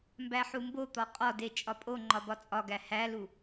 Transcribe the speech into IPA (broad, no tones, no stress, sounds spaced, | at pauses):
m b æ ħ u m b o t̪ ɒ qʼ ɒ d e t͡ʃʼ ɒ pʼ o ŋ͡ǃ ɒ b ɒ t͡sʼ ɒ ɡ æ h æ l u